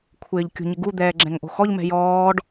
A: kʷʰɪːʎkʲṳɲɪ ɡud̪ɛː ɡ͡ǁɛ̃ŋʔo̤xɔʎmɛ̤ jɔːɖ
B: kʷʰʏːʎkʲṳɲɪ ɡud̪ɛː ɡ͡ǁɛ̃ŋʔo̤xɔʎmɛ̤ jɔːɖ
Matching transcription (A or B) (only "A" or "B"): A